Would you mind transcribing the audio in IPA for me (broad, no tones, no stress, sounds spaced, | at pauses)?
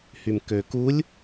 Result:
h y m k ø k u lʲ